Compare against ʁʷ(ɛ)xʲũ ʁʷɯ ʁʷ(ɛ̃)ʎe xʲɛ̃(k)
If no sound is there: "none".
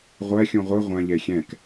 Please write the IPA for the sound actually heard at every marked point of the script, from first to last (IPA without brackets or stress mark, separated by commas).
ɛ, ɛ̃, k